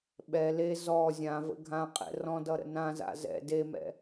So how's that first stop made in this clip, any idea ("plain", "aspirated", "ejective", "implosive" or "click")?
implosive